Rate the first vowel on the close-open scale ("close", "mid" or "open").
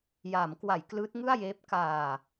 open